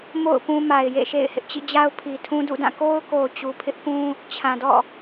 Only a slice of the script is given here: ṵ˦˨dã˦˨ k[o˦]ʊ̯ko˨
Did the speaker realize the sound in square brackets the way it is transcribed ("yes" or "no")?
yes